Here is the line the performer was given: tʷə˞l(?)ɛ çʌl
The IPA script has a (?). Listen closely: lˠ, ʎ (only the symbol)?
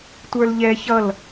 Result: ʎ